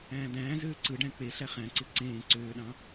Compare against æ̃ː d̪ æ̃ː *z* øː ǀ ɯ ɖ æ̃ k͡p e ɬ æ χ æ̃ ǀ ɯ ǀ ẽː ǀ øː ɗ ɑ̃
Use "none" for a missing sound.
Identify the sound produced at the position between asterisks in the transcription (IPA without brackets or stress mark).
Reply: z